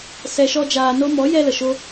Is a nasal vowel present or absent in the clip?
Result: absent